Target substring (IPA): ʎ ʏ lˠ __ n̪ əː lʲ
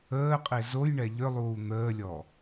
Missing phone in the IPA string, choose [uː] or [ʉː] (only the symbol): uː